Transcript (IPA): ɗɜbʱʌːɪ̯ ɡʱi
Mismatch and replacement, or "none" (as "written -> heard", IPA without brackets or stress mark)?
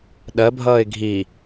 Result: none